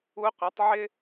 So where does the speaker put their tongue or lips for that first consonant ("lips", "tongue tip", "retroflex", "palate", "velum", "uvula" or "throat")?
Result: uvula